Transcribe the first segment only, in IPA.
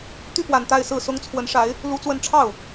t̪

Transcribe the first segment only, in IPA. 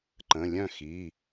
ǃ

